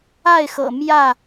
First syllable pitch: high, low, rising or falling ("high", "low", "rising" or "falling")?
falling